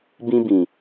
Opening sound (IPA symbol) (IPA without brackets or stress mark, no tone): b